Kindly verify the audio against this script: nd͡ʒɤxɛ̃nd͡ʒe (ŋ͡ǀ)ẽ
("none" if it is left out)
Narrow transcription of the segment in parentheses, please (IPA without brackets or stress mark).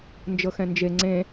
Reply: ŋ͡ǀ